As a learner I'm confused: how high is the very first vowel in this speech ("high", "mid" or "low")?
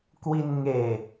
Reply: high